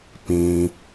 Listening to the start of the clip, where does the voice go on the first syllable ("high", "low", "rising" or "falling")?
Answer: low